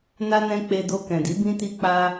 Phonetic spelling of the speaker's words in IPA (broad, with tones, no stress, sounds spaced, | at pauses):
n a˧ n ɛ̃˧ k͡p e˧ d o˧ k ɛ̃˨ d i˨˦ b ĩ˦ t i˦ k͡p a˦